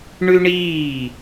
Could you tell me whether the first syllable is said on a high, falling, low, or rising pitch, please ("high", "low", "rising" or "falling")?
high